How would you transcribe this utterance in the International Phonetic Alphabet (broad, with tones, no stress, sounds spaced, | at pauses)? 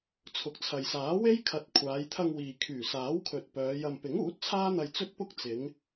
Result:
t͡sʰ ʊ˨ k̚ t͡sʰ ɐ˨ j s aː˨˥ w e˥ j kʰ ɐ˨˥ t̚ kʷʰ aː˨˧ j t̪ʰ ɐ˧ ŋ w iː˨ kʰ yː˨˩ s aː˨˥ w kʰ ɵ˨ t̚ p œː˨˧ j ɐ˧ m p ɪ˨˥ ŋ uː˨˥ t̚ t͡sʰ aː˥ n̪ ɐ˧ j t͡s ɵ˥ t̚ p ʊ˥ k̚ t͡s ɪ˨˧ ŋ